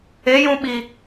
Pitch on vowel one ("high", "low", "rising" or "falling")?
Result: rising